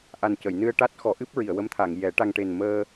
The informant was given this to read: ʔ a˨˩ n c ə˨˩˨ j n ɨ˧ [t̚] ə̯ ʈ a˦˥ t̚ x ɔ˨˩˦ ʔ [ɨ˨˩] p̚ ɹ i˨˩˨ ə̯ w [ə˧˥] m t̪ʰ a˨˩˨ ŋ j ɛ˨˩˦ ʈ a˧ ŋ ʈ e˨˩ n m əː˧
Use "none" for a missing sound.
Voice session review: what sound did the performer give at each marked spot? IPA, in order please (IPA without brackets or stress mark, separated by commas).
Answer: none, ɨ˦˥, ə˧˥